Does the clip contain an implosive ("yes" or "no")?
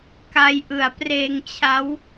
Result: no